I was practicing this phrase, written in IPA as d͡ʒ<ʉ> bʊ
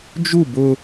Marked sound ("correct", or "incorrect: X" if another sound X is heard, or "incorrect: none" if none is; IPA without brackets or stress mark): incorrect: u